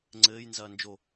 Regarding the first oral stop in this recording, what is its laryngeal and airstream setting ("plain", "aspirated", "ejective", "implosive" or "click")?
click